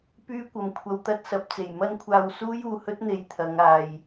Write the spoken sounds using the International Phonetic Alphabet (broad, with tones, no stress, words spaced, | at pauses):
pyː˥kʷɐ˨˧m kʷʰɐ˧wt̪ɐ˥t̚sɐ˨˥p̚t͡se˨˩j mɐ˥nkʷʰaː˧w suː˥juː˨hɵ˥t̚n̪e˨j t̪ʰɐ˨˧ŋaː˨j